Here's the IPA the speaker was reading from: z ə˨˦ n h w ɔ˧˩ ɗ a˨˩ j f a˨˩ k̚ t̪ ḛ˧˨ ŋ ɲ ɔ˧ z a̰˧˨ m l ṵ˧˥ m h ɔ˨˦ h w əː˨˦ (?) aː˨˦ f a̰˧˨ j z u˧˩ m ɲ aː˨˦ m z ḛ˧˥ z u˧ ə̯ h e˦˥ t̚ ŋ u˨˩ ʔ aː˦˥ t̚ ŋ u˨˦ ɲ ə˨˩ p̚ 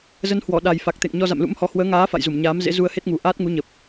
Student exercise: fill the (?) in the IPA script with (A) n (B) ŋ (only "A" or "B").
B